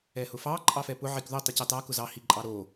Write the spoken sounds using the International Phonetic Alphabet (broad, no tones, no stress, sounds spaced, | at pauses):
ɛ h ʊ f ɑ ǃʼ ɑ f ɛ p ʊ ʕ i k ð o tˤ i c ɑ t ɑ k ʊ z ɑ h i ǃʼ ɑ ɾ o